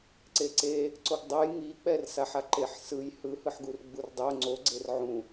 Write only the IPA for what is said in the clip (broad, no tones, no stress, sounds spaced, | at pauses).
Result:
ǀ e ǀ e | ǀ o ɡ dˤ o j ŋ i k͡p ɛ r s a ħ a ǃ e ħ s ɯ j h ɯ h ɯ ħ ɡ u r ɡ͡b u r dˤ o ŋ͡ǀ o ɡ͡ǀ e r ʕ ũ